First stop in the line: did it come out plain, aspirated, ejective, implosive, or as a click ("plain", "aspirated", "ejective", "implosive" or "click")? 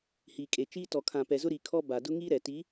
ejective